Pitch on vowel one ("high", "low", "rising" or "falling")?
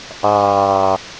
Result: low